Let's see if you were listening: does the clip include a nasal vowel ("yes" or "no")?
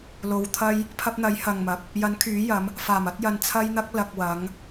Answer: no